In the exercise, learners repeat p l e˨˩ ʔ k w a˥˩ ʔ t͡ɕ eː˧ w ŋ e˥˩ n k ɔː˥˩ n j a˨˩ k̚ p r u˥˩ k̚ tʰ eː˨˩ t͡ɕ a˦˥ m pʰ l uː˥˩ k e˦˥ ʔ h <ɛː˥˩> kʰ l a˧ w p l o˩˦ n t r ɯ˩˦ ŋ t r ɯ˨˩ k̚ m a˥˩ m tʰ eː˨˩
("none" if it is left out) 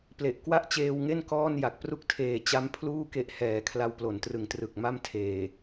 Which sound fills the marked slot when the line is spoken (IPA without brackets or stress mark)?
ɛː˩˦